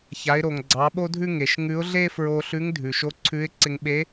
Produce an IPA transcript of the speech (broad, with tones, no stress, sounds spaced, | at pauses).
ç a˩˧ ɪ̯ ɾ o˩ ŋ ɡ͡ǀ ɑ˩˧ ɓ o˥ dʱ ʉ˥ ŋ e˩ ʃ ŋ ʉ˧˥ ʊ̯ ɮ e˥ f ɹ o˧ ɬ ʉ˧˥ ŋ dʱ ʉ˩ ʃ o˧˥ ǀʰ ʉ˧˥ ɪ̯ ǀ ɪ˧ ŋ ɓ e˧˥